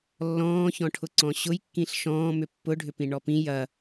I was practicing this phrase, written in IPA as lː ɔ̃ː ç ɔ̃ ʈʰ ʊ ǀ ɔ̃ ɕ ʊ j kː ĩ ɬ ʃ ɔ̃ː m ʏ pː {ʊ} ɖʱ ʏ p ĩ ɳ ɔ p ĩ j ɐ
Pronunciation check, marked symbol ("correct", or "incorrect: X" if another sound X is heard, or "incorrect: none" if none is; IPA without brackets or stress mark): correct